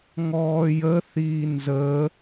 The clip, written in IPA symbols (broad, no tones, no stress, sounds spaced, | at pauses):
ŋ ɔː j ə θ iː n z əː